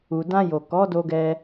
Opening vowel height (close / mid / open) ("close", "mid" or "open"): close